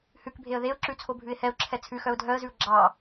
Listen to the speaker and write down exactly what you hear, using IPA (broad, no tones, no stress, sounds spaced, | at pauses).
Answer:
h ʉ k bʱ e ə̯ ð e ʊ̯ ǁ ʉ t͡sʰ o bʱ ʉ ɪ̯ h ɛ ʊ̯ ǁʰ ɛ t͡sʰ ʉ x œ ʊ̯ dʱ œ ə̯ z ʉ ʊ̯ ɡ͡ǁ ɑ